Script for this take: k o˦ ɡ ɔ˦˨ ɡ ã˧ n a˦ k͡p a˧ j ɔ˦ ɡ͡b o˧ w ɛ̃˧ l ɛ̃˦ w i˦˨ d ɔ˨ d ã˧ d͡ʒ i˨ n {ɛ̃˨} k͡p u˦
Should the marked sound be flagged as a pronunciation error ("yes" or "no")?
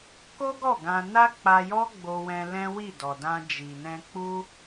yes